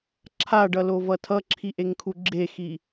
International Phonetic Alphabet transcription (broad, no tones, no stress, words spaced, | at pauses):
ǁʰaɖʌlovʌ tʰʌǁʰiʔeŋkʰu ɡ͡ǁexi